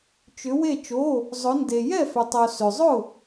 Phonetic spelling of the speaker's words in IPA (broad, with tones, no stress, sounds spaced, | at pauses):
t͡ʃ ʏ˩˧ w e˧˩ t͡ʃ o˩˧˩ | zˤ ʊ˩˧ n d e˩ j ɛ˥˩ f ʏ˩ tˤ o˩ s ʏ˩ zˤ ʊ˥˩